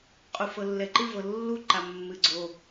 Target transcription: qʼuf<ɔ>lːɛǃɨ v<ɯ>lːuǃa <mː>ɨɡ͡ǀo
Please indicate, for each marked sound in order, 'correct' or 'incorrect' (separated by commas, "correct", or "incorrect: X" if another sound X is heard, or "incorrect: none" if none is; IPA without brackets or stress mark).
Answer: incorrect: ɤ, incorrect: ɤ, correct